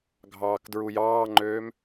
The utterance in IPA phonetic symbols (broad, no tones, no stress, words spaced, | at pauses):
ɡʱɑːkdɹujɑːŋ͡ǃøːm